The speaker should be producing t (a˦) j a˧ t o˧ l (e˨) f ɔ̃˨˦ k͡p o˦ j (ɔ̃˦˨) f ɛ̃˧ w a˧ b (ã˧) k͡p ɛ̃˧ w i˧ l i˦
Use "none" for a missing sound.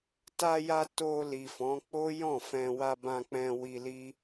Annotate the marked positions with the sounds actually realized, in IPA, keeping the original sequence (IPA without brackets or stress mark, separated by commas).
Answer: a˧, i˨, ɔ̃˦˨, ã˧